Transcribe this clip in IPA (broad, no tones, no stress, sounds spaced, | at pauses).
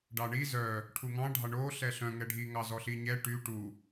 ɖ ɑ ɳ i z œ | ʈʰ u ŋ ɑ̃ ɖʱ ɑ ɳ o ɬ ɛ ɬ œ̃ ŋ ɛ ɖʱ i ŋ ɑ z ɔ ɬ i ɲ ɛ ʈ y ʈ u